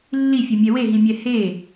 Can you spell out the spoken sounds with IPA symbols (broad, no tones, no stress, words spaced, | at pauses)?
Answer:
lːifʲɛmʲɛ weɦĩmʲɛ he